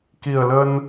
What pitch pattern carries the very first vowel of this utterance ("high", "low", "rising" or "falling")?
low